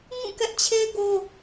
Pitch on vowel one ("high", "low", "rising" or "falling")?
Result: falling